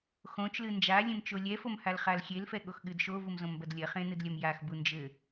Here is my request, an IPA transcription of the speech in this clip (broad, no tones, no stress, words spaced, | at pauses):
xõt͡ʃlɨ nd͡ʒa lʲẽmt͡ʃolʲɛfom halχalxʲelfɛ ɠoxɠɨdʃovum zõmbɐdlʲɐχẽ nɨdlʲɐmjaxbu nd͡ʒɘ